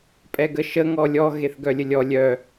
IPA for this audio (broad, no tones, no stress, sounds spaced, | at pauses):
pʼ ɛ ɡ ə ʃ ə ŋ ɔ lʲ ɔ ɣ e θ ɡ œ lʲ ə lʲ ɔ lʲ œ